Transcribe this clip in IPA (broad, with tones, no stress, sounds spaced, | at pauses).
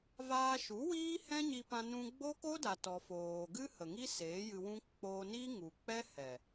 v aː˧ ʃ u˨˦ w iː˦ h ɛ̃˦ ɲ i˧ p ã˧ n ũ˧ ɡ͡b o˦ k o˦ d a˨ t ɔ˨ f oː˨ ɡ ɨ˦ h ə˨ ŋ i˦ s eː˨˦ j ɨ˧ w ũ˦ k͡p oː˧ n i˦ ŋ u˨ k͡p ɛ˦ h ɛ˨